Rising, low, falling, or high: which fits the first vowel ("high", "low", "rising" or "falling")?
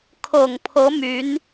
low